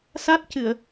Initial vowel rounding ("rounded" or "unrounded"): unrounded